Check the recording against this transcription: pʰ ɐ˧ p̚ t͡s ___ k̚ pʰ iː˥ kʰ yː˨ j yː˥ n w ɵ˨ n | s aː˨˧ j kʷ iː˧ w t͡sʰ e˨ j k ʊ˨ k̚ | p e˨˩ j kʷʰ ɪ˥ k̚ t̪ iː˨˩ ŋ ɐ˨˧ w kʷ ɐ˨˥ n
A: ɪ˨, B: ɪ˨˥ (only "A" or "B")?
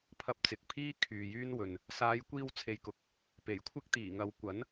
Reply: A